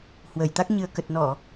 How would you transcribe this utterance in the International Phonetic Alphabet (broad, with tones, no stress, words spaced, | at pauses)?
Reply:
hwə˧˩jt̪a˦˥k̚ ɲɨ˨˩ə̯kə˨˩t̚ nɔ˧˩˨